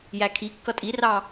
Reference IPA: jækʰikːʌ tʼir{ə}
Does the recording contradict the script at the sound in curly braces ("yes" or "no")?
yes